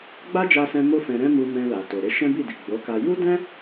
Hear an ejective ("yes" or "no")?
no